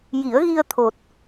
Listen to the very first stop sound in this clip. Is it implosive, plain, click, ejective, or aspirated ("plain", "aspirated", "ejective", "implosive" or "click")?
aspirated